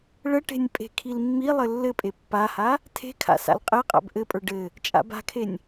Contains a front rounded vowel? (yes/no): no